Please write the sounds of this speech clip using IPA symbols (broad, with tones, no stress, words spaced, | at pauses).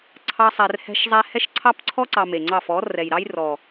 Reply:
ǀʰɑ˧ sˤɛ˨r hɛ̤˧ʃzˤɛ˧ hɛ˦ʃǀʰɑ˦p ǀʰɔ˦ ǀɑ˧me˨ŋ͡ǀɑ˦˨ fɔ˨˦ rɛ˨jɾɑ˦jrɔ˨